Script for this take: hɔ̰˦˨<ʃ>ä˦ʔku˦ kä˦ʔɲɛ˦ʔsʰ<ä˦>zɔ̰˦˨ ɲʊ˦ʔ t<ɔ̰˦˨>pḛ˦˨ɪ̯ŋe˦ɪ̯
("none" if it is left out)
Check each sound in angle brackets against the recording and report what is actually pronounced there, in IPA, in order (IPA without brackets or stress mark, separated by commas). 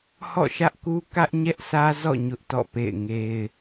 ʃ, ä˦, ɔ̰˦˨